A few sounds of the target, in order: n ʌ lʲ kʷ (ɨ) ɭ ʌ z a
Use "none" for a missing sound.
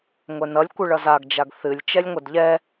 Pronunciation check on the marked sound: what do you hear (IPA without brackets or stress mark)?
ɨ